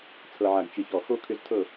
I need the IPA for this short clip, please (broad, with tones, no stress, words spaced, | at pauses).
t͡sʰɤ˨ʕa˨ɡ t͡ʃɨ˨çɔ˨ xo˦kʰʏ˧z tʰɤ˦˨